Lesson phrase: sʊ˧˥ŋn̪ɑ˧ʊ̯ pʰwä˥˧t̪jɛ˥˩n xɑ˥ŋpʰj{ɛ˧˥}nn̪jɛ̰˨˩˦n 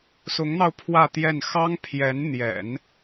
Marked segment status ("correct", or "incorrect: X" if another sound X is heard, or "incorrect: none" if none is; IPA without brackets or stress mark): correct